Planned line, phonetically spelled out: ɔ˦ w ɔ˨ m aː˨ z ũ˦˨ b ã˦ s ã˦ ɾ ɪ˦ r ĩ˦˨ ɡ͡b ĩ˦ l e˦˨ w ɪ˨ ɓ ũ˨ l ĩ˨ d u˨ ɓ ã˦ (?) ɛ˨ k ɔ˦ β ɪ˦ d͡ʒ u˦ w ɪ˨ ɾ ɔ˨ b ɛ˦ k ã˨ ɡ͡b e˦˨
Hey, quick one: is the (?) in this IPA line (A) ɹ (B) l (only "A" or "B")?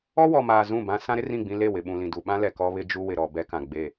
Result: B